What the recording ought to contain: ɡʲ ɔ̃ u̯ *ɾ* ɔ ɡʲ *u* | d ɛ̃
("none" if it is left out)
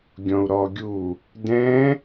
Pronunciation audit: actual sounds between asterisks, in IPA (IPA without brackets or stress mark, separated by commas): ɾ, u